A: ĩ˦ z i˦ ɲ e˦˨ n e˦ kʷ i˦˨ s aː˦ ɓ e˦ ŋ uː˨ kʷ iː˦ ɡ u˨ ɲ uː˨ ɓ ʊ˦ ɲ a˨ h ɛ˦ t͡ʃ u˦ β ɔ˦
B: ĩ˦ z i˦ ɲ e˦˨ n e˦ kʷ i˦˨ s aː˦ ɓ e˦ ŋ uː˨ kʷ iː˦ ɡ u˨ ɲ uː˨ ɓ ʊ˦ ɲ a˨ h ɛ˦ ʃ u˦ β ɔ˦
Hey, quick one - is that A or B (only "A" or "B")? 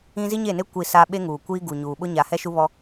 B